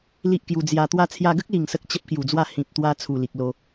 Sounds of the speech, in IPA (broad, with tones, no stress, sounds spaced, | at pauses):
l i˦ ʔ k j u˧ d͡z j a˧ t̪ w a˦ t͡sʰ j a˧ ɡ ə˦ k̚ l i˨˩ ŋ s ə˦ k̚ t͡ɕ ə˦ p̚ k j u˨˩ d͡z w a˥˧ h ĩ˨ p̚ t̪ w a˧ t͡sʰ u˨˩ l i˨ k̚ l o˧